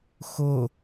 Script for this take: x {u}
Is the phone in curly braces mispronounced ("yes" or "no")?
yes